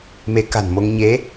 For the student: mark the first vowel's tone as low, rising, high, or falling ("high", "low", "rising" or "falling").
rising